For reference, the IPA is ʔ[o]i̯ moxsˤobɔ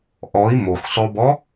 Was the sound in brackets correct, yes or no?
no